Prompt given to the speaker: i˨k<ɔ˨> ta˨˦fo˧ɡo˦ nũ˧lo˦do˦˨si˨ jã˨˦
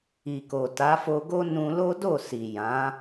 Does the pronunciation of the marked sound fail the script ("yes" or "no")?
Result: yes